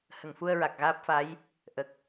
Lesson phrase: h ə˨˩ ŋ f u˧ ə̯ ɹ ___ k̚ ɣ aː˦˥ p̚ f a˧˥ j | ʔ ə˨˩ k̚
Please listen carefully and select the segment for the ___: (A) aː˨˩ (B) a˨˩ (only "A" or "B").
B